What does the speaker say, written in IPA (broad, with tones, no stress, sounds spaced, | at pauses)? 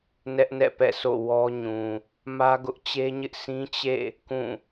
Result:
n ɛ˦ ʔ n ɛ̰˦˨ p ɛ̰˦˨ s o̰˦˨ w ɔ˦ ɲ ũ˨ | m ä˦ ɡ ʊ˦ ʔ t͡ɕ e˦ ɲ ɪ˦ ʔ s ĩ˦ t͡ɕ ḛ˦˨ | k ũ˦˨